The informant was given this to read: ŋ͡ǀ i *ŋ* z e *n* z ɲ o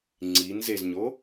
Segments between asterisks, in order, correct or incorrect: incorrect: n, incorrect: none

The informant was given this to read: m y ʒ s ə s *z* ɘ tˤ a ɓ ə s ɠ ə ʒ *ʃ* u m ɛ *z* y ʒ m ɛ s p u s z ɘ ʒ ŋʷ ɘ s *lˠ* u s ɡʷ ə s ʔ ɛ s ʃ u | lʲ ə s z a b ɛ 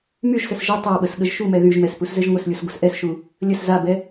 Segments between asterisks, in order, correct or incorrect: incorrect: ʒ, correct, incorrect: ð, incorrect: lʲ

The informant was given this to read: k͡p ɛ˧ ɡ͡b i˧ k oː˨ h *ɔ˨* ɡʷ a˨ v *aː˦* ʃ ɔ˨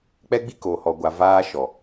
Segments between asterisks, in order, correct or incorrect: correct, incorrect: aː˧

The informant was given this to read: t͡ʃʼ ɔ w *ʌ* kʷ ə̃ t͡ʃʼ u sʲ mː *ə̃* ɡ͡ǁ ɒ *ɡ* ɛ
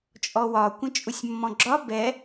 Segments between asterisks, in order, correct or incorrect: incorrect: ɒ, incorrect: ɔ̃, incorrect: b

